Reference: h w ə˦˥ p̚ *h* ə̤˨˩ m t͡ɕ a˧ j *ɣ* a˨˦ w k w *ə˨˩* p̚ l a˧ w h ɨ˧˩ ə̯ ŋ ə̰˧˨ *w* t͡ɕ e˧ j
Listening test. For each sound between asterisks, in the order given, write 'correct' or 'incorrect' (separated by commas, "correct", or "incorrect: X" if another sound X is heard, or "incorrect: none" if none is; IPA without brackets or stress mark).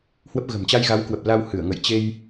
incorrect: ɣ, correct, correct, incorrect: j